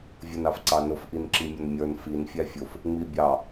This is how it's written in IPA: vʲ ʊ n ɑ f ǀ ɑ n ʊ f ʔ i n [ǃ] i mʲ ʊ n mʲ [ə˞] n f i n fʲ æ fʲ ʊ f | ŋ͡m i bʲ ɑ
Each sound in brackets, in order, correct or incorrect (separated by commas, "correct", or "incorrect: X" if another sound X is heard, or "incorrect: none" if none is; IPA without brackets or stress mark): incorrect: ǁ, correct